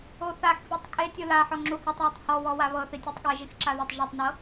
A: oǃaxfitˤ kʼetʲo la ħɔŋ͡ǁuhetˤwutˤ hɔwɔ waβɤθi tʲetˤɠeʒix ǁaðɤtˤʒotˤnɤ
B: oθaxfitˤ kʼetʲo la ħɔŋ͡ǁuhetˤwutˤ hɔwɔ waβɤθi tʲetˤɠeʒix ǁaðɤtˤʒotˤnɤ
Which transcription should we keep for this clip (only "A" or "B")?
B